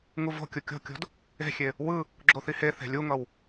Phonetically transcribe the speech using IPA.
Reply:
ŋuvo̤kʲu kʲo̤kʲo̤d | e̤xʲe | wɯ | ɡ͡ǁoθiheθe̤ lʲuŋʌw

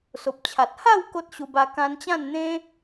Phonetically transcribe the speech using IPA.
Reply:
so˨p̚t͡ɕʰa˨t̚ ha˥˧w ko˦t̚ɕu˧ba˧ kã˧nt͡ɕã˥˧nn̪ẽ˦

